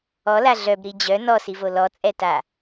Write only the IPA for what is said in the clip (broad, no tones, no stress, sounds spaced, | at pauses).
ɔ l a ɮ œ b ɾ i d͡ʑ œ n ɔ s i v o l ɔ t͡sʼ ɛ t a